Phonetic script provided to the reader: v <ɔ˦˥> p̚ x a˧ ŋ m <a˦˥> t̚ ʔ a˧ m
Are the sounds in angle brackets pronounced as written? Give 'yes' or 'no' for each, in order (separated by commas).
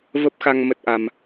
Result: no, no